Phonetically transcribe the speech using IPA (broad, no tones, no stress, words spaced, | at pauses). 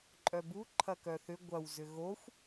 ǃʼœbu ǃʰɐkœθʏ ɡʷɐw zʏɣoxʷ